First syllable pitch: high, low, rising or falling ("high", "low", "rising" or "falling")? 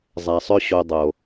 low